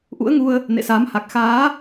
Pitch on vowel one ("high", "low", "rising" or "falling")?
rising